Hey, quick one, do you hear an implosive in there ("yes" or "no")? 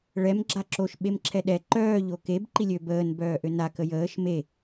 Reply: yes